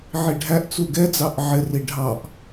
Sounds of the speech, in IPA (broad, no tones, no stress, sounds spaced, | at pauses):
ʕ i ɖʱ æ ʔ t͡s u ɡ ɛ d͡z ɑ ʔ ʕ ɪ r i ɖʱ ɑ ʔ